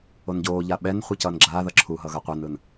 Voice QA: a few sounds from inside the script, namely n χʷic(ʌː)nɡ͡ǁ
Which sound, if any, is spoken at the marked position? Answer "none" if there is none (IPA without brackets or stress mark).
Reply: ʌː